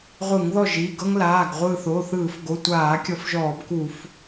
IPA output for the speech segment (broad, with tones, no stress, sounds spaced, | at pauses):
ʁʷ ɯ˧˩˧ ŋ ð ɔ˥˨ ʒ i˩˧˩ ɡ ɤ˦ ŋ l aː˩˧˩ ɡ ʁʷ ɯː˧˩ θ oː˩˧˩ θ ɯː˧˩˧ f ɡ o˩˧˩ tʷ aː˧˩˧ kʲ ɔ˨˦ f ʒ ɔː˧˩˧ b k u˧˩˧ f